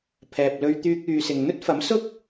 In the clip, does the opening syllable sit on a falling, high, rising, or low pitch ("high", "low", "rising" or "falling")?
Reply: low